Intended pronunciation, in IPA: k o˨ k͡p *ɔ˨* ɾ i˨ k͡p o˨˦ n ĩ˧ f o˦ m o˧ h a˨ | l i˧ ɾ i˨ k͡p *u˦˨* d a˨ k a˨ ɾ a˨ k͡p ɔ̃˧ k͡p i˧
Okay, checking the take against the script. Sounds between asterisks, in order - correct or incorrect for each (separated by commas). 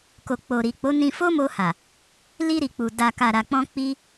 incorrect, incorrect